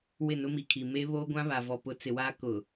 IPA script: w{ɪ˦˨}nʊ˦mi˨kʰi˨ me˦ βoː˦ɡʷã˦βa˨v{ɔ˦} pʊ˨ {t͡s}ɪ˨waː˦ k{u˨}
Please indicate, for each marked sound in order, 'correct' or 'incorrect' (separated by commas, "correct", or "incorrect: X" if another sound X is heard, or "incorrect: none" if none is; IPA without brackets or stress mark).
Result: correct, incorrect: ɔ˨, correct, incorrect: ʊ˨